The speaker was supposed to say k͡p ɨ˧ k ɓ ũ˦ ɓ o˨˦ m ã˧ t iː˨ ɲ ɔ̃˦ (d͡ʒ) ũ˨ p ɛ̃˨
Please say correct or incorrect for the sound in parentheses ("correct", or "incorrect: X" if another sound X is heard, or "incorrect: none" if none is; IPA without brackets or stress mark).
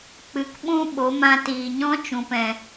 incorrect: t͡ʃ